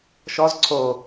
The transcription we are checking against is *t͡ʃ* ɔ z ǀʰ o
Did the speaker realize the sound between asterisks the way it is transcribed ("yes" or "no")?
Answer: no